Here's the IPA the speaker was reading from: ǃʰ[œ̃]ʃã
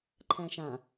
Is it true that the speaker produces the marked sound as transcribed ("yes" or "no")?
no